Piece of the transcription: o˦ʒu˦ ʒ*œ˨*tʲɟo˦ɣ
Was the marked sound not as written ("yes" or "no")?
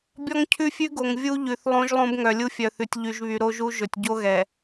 yes